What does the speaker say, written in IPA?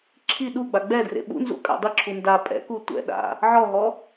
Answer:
ǁʰi ɗuɡ͡ba ɡ͡bɛdrḛ ɓṵnzṵ kʼa̰dˤiǁʰu nda pʼɛ̰ku tʷɛ̰ɗa̰ | ʕɔɦɔ

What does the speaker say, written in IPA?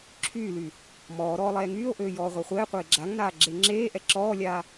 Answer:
ǁʰyːlyː | mɔːɾɔː lˠɛːŋyːo̯ʔøː jɔːʁʷɛχʷɛːqʷeː ɡ͡ǁaŋnaː ɡ͡ǁeŋ͡ǁeːʔɛ ǁɔːlʲaː

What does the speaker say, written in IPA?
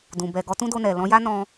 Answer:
dũ˨ bɛ˨ ɡɔ˨˦tũ˦do˧nɛ˨ lɔ̃˧ja˦ nɔ̃˧

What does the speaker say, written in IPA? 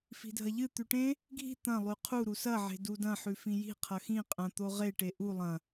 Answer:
fi̤dʱɐʎɨ t̪ʉʈẽ | ɡʱi̤ t̪ɐ̃ lˠʉqʰu ɾusɐ ʕe̤dudɐ̃ ħʉfĩji̤ qʰɐxĩ qʼɐ̃ t̪oʁe ʈeʔu lˠɐ̃

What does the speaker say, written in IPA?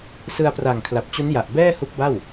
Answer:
sɯ˧a̯pra˨˩ŋkʰla˨˩p̚t͡ɕu˦˥n ja˨˩ʔbɛː˥˩hu˦˥k̚ba˥˩w

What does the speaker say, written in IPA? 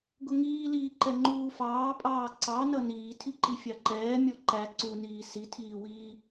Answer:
ɡʊŋiːliː ǃɛŋ͡ǃuːfɑːpʼɑː ǀɑnʌ niːtʰiǃi fʲɑǃɛː mʲɔǃæ ǀuniː sitʰiːwiː

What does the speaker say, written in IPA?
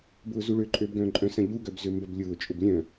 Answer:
bʊːzuɭø ǃʼøːbɡœ̃ːǃʼœ̃sɐ̃ ʎuɡœbzø mbɐblʲʊːt͡ʃʼʊb lʲœ̃

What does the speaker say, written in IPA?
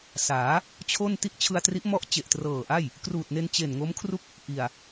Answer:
saː˩˦ | t͡ɕʰo˥˩n ti˥˩ʔt͡ɕʰɯ˧a̯tri˦˥ʔ mɔ˦˥ʔt͡ɕe˨˩ʔtrɤː˨˩ʔa˥˩j | kruː˨˩t̚ne˧n t͡ɕe˨˩n ŋo˦˥mkʰru˥˩k̚ | ʔi˨˩a̯

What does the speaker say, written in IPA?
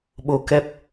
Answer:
ɓo˧kɛ˦˥p̚

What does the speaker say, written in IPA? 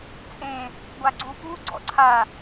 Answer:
t͡sʼẽ | ɡʷaɡ͡ǀupu ɡ͡ǀɔ̰ǀʰa

